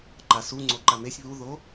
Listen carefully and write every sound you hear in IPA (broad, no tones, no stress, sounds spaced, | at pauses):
ǃ a s u ŋ͡ǀ o ǃ a m e sʲ β u ð o